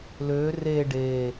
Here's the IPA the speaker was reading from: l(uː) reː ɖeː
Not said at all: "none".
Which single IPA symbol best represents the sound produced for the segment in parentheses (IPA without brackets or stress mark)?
øː